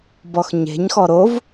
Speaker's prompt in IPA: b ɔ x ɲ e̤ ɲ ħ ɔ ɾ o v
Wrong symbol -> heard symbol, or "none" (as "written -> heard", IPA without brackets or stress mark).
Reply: ħ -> x